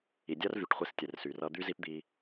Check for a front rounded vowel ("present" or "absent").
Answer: present